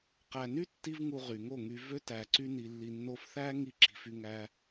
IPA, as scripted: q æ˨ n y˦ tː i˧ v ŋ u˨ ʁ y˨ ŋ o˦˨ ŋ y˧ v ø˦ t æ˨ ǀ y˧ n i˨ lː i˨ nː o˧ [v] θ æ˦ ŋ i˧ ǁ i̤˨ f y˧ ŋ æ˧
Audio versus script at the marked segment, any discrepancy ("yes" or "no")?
yes